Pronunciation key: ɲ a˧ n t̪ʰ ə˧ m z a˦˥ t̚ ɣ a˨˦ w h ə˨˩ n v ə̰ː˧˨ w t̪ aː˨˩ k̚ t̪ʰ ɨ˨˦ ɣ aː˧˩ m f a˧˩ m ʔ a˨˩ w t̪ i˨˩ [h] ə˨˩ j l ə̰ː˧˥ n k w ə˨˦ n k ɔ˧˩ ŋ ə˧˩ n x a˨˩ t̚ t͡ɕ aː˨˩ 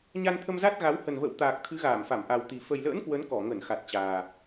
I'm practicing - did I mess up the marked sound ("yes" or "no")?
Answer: yes